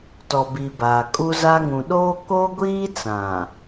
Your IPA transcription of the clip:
tɔ˨bi˨ baː˨kʼu˦za˦ ŋũ˨ɗoː˦ ko˦ɡʷiː˦t͡sã˨

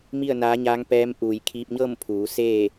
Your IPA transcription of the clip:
mi˥˨ə̯naː˧˥ɲaː˧˥ŋ pɛː˧˥mʔuː˧˩j kʰiː˧p̚ɲɤː˥˨mpʰuː˩˧ seː˥˨

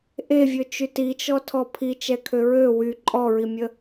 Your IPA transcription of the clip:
ʔevʲøt͡ʃy tit͡ʃɔtʰɔ pʰit͡ʃɛkʰø ɹø wy ǃʼɔɹimʲə

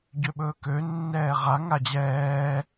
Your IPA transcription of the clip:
ɟøɓɵːkø nːɛːʁa ŋad͡ʑɛː

